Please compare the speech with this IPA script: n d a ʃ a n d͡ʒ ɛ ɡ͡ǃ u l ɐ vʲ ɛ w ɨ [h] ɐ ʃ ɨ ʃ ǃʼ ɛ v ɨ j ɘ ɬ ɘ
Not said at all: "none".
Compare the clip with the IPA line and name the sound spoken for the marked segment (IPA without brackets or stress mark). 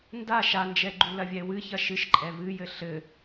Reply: ç